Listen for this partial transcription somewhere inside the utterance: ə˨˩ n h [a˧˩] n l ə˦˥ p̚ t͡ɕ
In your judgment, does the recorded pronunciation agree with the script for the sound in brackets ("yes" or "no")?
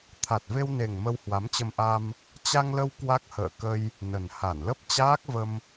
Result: yes